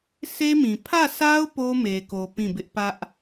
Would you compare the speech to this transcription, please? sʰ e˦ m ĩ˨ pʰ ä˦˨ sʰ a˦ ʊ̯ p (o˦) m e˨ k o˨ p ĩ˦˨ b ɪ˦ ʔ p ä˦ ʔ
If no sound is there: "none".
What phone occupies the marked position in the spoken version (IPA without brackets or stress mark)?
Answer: o˦